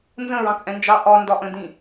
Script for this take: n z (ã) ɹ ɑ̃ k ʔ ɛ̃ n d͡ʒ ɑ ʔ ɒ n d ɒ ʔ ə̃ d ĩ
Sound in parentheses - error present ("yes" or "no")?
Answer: yes